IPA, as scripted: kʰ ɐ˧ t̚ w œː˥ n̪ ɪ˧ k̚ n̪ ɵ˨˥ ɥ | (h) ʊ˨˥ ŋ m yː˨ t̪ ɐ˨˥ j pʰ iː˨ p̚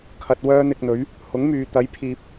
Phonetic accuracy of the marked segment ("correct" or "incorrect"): correct